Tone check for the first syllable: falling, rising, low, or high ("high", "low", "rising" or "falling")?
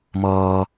low